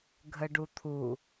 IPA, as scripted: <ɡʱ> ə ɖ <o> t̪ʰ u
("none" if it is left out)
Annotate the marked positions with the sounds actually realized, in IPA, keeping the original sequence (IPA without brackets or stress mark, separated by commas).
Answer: ɡʱ, u